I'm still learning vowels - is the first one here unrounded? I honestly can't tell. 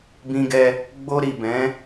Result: yes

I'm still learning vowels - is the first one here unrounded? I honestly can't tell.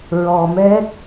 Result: no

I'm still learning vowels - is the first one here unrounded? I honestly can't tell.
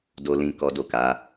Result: no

